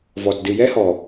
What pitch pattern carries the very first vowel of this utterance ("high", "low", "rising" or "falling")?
low